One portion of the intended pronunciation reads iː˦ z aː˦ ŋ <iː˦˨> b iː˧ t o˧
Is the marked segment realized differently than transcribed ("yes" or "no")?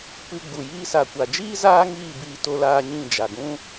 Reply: no